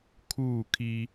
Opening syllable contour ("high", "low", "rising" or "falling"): falling